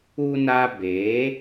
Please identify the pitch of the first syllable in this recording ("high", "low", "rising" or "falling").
high